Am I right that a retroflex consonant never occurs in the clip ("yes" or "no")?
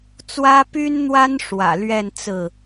no